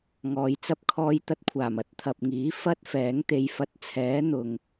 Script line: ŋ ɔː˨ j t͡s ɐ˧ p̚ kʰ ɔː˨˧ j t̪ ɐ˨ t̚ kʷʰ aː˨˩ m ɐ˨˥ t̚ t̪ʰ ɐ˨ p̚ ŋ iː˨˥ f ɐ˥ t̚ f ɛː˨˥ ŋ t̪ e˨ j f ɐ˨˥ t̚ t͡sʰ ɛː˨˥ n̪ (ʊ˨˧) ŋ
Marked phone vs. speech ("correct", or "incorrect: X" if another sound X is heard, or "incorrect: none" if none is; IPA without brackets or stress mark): incorrect: ʊ˨